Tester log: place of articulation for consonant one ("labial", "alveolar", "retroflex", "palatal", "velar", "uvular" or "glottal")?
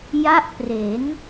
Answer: palatal